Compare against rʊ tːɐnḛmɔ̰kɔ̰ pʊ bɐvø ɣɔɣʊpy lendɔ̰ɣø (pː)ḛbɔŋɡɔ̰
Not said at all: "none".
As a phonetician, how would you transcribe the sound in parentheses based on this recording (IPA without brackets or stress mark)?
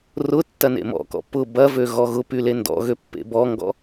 pː